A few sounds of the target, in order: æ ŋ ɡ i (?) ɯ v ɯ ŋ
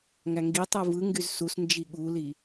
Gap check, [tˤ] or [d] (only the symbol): tˤ